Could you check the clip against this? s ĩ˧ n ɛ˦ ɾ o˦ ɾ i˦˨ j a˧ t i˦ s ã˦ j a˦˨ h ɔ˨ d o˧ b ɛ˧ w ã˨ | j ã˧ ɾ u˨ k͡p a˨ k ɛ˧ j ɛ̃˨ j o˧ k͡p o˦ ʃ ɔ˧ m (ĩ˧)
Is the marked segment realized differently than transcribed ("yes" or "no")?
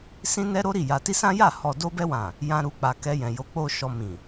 yes